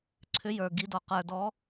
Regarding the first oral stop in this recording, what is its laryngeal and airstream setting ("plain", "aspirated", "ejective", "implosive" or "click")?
click